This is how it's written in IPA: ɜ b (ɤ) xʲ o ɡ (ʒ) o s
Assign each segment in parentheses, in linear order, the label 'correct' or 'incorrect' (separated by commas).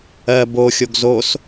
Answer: incorrect, incorrect